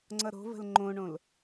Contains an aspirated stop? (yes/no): no